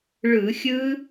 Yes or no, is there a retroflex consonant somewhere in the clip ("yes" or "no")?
yes